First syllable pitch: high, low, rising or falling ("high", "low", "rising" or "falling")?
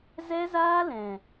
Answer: high